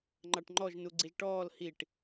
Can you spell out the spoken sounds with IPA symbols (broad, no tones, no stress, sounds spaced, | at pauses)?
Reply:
ŋ͡ǃ ɑ ʈ ŋ͡ǃ ɔ ʒ n u ɡ͡ǀ i ʒ ʈ ɔː l h i ʈ